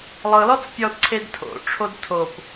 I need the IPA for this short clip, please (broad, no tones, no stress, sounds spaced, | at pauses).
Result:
lˠ ɤ l ɔ t͡s pʲ ɔ d ǀʰ e d tʰ o̰ ʈ͡ʂʰ o d tʰ o p